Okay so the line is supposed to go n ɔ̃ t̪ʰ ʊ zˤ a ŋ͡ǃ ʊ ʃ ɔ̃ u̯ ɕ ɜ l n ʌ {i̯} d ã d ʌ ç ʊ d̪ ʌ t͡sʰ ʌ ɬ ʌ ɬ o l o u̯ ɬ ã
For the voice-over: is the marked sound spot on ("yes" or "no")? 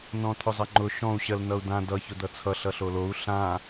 no